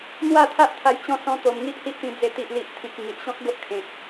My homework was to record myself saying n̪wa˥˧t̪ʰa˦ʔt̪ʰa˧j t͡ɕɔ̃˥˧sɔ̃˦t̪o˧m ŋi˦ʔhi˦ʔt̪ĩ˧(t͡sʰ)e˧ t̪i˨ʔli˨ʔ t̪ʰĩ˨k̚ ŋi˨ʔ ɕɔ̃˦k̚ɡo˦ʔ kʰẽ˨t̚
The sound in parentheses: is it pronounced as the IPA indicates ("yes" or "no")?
no